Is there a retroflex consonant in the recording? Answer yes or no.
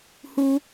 no